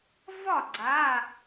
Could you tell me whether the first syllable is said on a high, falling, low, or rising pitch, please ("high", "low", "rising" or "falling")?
falling